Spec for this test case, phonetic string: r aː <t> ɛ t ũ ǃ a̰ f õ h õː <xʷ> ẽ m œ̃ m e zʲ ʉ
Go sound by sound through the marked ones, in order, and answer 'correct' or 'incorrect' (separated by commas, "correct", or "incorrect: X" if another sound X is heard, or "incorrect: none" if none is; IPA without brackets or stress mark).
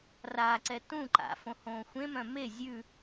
incorrect: ǀ, correct